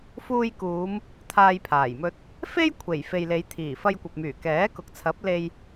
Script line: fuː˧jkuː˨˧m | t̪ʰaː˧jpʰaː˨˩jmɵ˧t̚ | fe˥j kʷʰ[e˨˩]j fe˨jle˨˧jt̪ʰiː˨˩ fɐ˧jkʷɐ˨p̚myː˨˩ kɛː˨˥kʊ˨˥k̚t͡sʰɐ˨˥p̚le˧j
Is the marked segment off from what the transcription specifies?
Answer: no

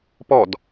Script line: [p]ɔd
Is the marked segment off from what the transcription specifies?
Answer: no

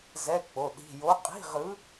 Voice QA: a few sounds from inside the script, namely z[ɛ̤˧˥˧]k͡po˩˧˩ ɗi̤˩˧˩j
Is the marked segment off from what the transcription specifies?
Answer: yes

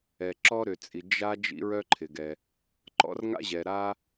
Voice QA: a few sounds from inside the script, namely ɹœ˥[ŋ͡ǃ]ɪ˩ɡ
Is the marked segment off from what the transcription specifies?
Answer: yes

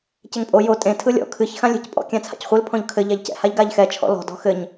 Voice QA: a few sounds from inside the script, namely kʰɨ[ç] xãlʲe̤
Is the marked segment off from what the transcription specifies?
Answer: no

